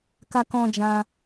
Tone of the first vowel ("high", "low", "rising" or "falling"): high